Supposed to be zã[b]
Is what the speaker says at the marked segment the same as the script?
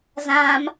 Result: no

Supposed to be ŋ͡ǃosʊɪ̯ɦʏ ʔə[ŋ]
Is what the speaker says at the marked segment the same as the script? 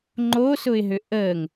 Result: yes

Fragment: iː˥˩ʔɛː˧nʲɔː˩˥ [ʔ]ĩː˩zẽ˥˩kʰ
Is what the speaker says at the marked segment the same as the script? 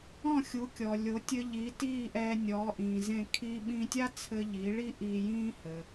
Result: yes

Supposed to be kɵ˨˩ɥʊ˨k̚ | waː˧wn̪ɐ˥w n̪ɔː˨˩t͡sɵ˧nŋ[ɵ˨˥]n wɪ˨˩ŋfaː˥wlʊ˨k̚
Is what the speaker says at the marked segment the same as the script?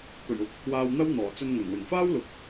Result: no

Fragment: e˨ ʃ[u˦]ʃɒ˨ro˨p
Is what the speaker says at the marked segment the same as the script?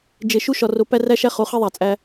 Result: yes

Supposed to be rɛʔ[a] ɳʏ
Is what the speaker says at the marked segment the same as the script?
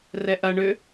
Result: no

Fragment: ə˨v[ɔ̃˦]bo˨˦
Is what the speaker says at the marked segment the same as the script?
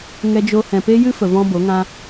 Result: yes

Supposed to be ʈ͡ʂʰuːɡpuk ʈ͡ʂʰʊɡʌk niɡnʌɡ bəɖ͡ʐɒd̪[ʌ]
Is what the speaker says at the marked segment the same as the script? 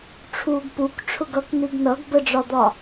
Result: no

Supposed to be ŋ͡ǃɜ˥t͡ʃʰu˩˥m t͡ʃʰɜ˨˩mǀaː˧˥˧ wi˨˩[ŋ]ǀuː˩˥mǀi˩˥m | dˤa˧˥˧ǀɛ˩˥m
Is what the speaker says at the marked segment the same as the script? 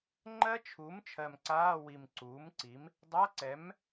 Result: no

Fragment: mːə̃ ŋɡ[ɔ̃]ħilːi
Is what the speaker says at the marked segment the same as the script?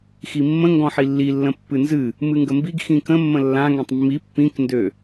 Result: yes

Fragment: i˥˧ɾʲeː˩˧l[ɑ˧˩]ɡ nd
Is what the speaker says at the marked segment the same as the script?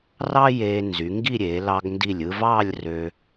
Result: no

